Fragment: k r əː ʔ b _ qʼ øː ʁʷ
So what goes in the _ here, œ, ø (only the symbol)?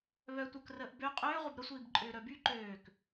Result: ø